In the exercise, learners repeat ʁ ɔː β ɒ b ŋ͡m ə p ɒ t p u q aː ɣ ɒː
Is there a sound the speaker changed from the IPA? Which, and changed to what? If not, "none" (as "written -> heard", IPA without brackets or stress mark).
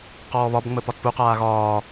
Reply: ʁ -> q